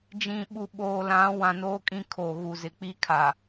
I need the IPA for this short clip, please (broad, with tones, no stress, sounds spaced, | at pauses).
d͡ʒ ĩ˨ ɓ u˨ ɓ oː˨ l ã˨˦ w ã˨ n oː˦ kʼ ĩ˦ kʰ o˨ ɣ u˨ z ɪ˨ k͡p i˦ kʰ a˨